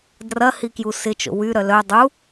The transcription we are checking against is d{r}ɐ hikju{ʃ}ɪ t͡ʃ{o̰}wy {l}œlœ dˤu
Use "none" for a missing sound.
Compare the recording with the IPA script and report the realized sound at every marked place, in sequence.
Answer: r, s, o̰, ɾ

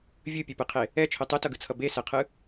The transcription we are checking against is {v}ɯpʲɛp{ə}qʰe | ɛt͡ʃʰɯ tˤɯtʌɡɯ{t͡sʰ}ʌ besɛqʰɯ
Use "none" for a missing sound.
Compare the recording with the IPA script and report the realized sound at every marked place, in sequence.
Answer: vʲ, ɯ, t͡sʰ

